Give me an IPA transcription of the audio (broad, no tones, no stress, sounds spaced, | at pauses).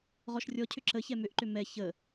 ʁ ɔ ʃ rʲ ɔ cʰ ʏ ǁ ə ç ɛ m ʏ ʔ ǃ ʏ m ɛ ç ə